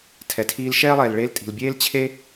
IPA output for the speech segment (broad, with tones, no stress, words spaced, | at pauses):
tʰɛ˩tʰiː˧lʃɛː˥lˠɛː˩l ɭeː˥ltʼi̤˩l bʲeː˥lt͡ɕʰe˥